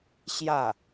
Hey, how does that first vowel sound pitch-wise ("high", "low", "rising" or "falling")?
falling